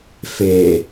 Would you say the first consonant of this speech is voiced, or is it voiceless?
voiceless